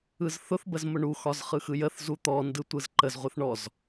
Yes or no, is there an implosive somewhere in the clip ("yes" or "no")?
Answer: no